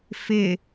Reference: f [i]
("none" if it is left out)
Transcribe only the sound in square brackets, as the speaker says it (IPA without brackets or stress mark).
ɪ